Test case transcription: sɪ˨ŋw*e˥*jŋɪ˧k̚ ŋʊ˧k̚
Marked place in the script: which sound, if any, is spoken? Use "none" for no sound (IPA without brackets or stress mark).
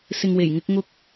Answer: e˨˩